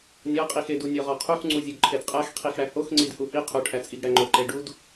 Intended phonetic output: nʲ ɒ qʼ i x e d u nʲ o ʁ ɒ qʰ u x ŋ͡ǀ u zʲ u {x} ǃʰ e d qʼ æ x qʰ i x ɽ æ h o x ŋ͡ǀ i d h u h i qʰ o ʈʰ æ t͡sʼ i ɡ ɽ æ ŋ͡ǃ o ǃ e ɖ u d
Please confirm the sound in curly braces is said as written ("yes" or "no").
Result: no